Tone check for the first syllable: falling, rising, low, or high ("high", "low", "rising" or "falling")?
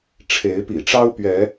rising